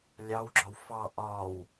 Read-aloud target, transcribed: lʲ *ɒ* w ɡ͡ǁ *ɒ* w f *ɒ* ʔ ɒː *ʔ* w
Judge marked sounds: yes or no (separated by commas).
no, yes, no, no